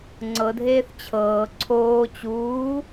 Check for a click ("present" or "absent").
present